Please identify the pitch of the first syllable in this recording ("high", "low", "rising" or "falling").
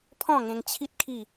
falling